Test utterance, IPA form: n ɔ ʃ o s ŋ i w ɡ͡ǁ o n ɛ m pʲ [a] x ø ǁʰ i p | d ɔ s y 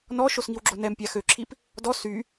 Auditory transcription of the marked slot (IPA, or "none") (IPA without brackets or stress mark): a